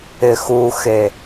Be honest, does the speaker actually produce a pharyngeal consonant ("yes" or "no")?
no